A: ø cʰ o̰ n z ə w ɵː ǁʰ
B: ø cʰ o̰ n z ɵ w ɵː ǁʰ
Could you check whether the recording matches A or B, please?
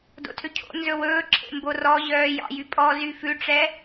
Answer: B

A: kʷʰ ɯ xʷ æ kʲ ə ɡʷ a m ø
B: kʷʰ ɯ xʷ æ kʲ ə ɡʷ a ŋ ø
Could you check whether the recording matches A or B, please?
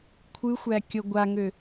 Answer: B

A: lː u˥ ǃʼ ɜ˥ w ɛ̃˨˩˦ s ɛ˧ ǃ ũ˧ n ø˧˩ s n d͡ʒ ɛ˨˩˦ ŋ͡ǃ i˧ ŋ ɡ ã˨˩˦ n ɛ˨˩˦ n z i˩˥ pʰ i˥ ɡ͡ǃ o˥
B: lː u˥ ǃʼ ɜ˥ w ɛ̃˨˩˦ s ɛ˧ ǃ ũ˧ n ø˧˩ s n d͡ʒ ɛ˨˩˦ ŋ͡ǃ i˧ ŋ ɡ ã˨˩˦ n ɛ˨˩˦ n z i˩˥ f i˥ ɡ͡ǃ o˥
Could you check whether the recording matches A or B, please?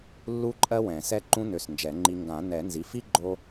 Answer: B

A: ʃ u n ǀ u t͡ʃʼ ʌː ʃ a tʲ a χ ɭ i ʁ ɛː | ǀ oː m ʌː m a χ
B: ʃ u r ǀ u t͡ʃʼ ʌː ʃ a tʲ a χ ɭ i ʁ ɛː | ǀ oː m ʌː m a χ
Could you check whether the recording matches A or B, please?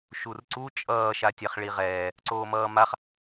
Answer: B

